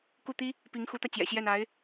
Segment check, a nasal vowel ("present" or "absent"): absent